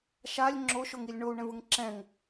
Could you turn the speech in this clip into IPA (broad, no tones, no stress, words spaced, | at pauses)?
ʃalʲ ŋ͡ǁoʃoŋilʲ ɳou̯ɳɛ̃vɯŋ ǁɛ̃ŋ